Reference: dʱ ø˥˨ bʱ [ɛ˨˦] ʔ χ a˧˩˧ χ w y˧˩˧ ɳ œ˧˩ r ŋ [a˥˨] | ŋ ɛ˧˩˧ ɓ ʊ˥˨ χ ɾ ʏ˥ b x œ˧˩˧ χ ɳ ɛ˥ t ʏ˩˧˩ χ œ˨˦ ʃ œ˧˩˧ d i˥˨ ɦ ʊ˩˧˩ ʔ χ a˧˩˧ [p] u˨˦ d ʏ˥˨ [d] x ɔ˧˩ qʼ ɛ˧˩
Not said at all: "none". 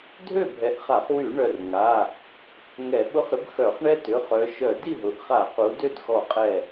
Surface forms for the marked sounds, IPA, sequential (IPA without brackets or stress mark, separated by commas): ɛ˨˦, a˩˧˩, q, d